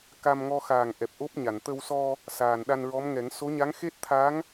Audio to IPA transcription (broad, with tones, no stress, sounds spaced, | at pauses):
k a˧ m ŋ ɔ˧ x aː˨˩ ŋ ʔ ɛ˨˩ p̚ ʔ o˦˥ p̚ ɲ a˨˩˨ n t̪ ə˧ w s ɔ˧ | s aː˨˩ n ɗ a˧ n ɹ ɔ˧˥ m ŋ ɛ˨˩˦ ŋ s o˧˥ ɲ a˧˥ ŋ x e˦˥ t̚ t̪ʰ a˧˥ ŋ